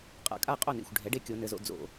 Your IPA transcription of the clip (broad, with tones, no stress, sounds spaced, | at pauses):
qʼ a̰˩˧ kʼ a˥˩ qʼ o˥˩ n ḭ˩ xʷ ɖʱ ɛ˩˥ ɖ e˦ kʲ o˩˧ n ɘ˩˧ z o̰˩˧ d͡z o̰˩